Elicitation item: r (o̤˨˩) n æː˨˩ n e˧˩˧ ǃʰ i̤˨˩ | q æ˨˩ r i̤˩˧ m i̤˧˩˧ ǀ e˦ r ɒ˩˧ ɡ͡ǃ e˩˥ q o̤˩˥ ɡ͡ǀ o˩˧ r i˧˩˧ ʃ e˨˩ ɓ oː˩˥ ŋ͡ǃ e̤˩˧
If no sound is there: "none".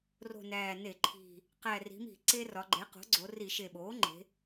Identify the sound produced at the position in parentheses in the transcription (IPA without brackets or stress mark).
o̤˨˩